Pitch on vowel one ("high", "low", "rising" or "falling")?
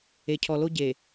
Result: low